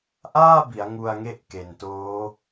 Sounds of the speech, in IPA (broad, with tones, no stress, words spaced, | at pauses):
ʔaː˥˩bi˩˦a̯ ŋu˧a̯ŋe˦˥ʔke˨˩ntoː˦˥